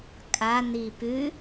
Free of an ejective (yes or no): no